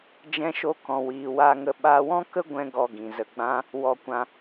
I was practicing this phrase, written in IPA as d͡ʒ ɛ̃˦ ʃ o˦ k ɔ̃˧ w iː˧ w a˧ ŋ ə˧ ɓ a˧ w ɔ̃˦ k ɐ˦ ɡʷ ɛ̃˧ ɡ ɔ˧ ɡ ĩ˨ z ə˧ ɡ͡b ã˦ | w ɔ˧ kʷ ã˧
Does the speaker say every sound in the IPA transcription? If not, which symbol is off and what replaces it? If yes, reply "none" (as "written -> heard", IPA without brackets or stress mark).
ɐ˦ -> ə˦